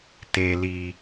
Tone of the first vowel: low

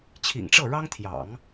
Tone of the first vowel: low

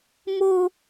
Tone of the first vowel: high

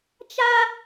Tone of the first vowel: high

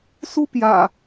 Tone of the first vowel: high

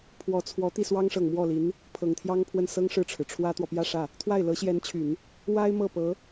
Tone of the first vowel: rising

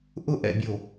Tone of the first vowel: high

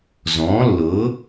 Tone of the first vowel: rising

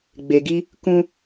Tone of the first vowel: low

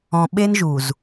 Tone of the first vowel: low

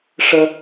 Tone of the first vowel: high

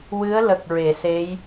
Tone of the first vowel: rising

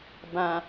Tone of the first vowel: low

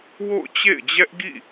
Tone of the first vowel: falling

